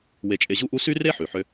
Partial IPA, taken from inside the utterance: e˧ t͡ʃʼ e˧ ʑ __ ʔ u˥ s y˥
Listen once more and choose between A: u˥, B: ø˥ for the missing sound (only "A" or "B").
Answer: A